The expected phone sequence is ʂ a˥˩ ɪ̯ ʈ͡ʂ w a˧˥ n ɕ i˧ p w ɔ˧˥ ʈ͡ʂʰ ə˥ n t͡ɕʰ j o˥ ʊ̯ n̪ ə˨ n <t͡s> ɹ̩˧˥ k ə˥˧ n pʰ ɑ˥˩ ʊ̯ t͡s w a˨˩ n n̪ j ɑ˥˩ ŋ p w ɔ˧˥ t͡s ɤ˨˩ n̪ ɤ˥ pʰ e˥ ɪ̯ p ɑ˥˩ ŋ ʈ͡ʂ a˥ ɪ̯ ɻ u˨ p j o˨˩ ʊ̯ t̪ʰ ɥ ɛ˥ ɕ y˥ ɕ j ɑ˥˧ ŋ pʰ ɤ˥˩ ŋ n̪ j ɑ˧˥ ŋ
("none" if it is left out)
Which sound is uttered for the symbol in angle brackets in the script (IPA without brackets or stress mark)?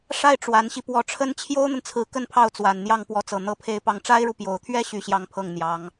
t͡sʰ